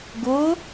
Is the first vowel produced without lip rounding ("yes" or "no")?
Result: no